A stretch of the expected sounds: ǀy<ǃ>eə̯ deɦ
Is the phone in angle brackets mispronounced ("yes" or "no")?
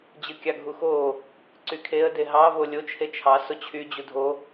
yes